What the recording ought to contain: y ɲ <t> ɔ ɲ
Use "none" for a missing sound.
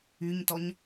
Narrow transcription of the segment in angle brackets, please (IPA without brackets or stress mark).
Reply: t